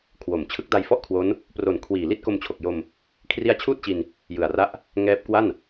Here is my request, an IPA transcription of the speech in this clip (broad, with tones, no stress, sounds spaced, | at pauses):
kʰ w o˨˩ m t͡ɕʰ ɯ˦˥ k̚ d a˧ j f ɔ˥˩ ʔ kʰ w o˦˥ n | p r o˨˩ n kʰ w iː˨˩ l i˥˩ t̚ k o˧ m t͡ɕʰ o˨˩ k̚ j o˧ m | kʰ r i˦˥ a̯ t͡ɕʰ uː˥˩ t̚ t͡ɕ i˧ n | j ɯ˨˩ a̯ r a˥˩ ʔ | ŋ ɛː˦˥ p̚ k w a˥˩ n